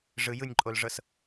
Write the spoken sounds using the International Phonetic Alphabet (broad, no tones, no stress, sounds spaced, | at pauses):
ʐ ɯ j ɯ nʲ ǃʼ o l ʐ ɤ s